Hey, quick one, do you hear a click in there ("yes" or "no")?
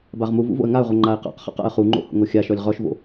yes